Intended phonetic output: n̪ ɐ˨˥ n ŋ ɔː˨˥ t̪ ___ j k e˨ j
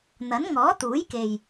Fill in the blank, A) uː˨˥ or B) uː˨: A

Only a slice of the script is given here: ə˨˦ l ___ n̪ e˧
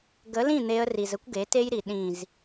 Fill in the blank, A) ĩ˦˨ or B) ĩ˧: A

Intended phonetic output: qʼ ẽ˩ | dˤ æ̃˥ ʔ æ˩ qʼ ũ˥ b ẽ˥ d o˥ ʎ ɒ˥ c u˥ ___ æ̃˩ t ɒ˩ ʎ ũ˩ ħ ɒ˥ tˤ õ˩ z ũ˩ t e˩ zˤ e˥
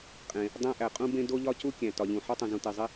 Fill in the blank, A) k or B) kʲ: B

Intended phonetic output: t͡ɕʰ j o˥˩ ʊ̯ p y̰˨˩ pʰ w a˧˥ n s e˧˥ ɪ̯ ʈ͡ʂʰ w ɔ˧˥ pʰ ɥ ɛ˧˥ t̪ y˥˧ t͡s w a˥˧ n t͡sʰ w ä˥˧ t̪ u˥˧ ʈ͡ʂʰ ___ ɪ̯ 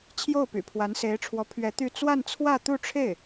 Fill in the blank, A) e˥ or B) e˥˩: B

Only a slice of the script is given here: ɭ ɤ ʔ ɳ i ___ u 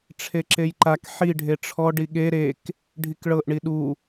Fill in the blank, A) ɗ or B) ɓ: A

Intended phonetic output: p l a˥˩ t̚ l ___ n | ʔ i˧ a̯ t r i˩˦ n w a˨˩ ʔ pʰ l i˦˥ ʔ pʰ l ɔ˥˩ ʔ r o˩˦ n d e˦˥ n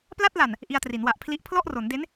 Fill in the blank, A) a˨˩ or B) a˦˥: A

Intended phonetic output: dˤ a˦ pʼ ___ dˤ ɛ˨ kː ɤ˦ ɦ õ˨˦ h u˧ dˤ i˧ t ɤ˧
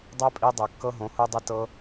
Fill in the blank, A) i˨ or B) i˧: B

